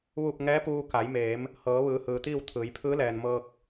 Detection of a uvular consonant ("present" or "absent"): absent